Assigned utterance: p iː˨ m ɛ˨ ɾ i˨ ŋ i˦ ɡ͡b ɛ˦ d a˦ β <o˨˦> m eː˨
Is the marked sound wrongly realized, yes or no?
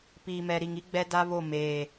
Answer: yes